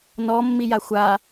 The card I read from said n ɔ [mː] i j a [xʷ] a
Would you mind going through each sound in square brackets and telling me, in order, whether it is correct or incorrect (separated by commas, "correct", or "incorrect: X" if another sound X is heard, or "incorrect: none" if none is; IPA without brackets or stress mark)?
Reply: correct, correct